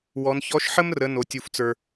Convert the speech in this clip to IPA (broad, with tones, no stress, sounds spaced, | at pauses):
w ɔ˩˧ n ç ɔ˧˥ ʃ ħ ə˥ m r ə˩˧ n o˩ tʲ u˩ f t͡s ə˞˩